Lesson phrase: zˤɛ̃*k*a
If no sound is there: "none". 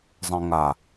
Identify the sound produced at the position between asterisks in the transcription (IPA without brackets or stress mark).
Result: ŋ